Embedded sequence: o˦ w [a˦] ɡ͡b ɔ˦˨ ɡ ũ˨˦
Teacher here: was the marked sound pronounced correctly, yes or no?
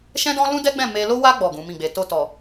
yes